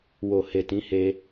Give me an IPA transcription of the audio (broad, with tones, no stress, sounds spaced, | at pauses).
w o˨ h e˨ t ĩ˨˦ h e˧